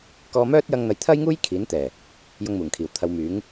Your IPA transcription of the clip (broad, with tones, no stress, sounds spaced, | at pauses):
k ɔː˧ m œː˥ t̚ j ɐ˧ ŋ n̪ ɐ˨˥ j t̪ʰ ɐ˥ j ŋ uː˥ j kʰ iː˨˥ n t̪ ɛː˨˩ | j ʊ˧ ŋ m uː˨˩ ŋ kʰ iː˨˩ w t̪ʰ ɐ˨˧ w m yː˨˥ ŋ